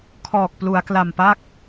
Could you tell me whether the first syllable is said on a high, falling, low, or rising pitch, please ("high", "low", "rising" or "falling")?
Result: low